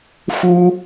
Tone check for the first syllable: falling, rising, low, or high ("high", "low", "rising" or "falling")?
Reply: high